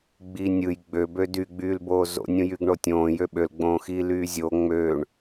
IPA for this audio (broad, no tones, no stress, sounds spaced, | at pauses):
ɡ͡b iː nʲ ɯ j ɡ͡b ø b ø d y ɡ͡b yː l b oː z o̰ nʲ ũ j y ɡ ɳ o tʲ õː j ø ɓ ø l ɡ͡b õː x iː l yː zʲ o ŋ͡m ø ɳ